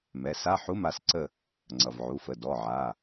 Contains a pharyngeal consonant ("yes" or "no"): yes